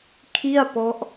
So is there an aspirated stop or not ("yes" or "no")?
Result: yes